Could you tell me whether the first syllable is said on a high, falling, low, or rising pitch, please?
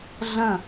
falling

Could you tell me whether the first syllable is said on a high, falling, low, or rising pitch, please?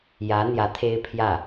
rising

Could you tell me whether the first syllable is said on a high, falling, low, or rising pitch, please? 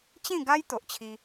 falling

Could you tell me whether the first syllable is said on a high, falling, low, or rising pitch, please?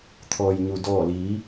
low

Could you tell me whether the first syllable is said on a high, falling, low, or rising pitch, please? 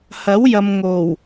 rising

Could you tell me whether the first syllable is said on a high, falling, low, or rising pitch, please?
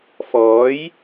rising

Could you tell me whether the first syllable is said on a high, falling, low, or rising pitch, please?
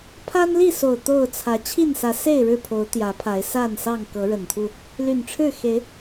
high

